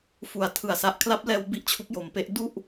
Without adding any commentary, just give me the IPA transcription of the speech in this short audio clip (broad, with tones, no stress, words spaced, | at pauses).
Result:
fu˩˦a̯tʰɯ˩˦a̯ sa˨˩ʔ kʰla˦˥p̚lɛː˧w bi˦˥ʔt͡ɕʰu˦˥k̚jo˩˦mpe˦˥ʔ du˥˩ʔ